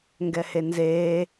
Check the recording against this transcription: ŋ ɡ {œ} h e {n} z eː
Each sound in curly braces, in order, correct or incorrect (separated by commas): incorrect, correct